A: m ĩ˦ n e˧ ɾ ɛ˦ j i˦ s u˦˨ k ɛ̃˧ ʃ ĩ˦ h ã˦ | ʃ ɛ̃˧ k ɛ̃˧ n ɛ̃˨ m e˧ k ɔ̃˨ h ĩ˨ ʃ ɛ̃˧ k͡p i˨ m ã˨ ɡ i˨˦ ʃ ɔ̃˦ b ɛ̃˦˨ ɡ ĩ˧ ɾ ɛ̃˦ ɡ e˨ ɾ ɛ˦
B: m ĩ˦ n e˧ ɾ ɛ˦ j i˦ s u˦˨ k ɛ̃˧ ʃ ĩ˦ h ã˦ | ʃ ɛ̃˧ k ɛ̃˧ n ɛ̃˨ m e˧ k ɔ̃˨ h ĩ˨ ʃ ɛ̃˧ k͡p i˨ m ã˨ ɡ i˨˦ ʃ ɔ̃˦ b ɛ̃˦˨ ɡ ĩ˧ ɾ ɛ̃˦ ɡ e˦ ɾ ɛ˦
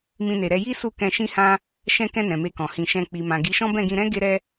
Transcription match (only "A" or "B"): B